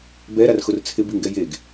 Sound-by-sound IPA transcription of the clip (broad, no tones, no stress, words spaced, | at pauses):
bɛɾarxʊr t͡sʰɪbiŋɡɛ jeɡ